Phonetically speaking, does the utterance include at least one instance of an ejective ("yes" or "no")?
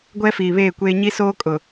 yes